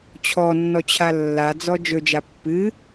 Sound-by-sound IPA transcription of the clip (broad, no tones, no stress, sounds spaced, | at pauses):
t͡ɕʰ ɔ nː ɔ t͡ɕʰ a lː a d͡z ɔ d͡ʒ ɵ d͡ʒ a pː ɨ